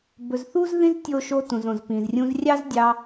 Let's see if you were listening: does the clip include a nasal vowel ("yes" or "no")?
yes